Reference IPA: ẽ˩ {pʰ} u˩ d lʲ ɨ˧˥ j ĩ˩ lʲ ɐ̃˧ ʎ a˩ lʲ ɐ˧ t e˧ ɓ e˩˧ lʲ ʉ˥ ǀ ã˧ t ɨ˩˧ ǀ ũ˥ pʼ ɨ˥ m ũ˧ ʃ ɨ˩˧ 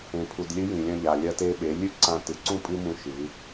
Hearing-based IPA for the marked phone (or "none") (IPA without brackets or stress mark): pʰ